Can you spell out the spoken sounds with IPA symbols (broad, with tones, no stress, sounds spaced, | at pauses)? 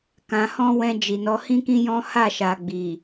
k ã˧ h ɔ̃˦ w ɛ̃˧ d͡ʒ i˨ n ɔ˨˦ h ĩ˦ k ĩ˦ j ɔ̃˦ h a˦˨ ʃ a˨ ɡ͡b i˨